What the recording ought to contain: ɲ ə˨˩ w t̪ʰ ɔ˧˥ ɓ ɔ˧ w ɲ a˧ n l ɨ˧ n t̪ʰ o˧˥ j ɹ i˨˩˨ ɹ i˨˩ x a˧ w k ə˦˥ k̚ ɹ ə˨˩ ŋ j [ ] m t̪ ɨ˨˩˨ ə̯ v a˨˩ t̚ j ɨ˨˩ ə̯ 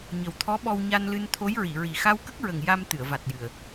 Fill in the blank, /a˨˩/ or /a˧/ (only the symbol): a˧